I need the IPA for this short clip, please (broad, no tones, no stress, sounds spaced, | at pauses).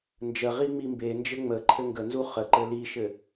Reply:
n d͡ʒ ə ʁ i ŋ͡m i m b e n d͡ʒ ɘ ŋ͡m ə ǃʰ ɘ ŋ ɡ ə n z u χ ə ǃ ɘ l i ʃ ɘ